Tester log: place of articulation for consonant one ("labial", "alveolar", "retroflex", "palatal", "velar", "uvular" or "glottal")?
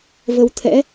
labial